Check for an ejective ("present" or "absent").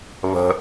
absent